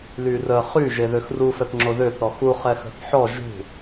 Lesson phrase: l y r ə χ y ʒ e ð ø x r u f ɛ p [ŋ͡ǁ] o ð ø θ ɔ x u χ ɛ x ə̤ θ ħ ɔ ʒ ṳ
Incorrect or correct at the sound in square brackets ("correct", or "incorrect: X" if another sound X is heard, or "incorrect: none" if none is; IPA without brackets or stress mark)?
correct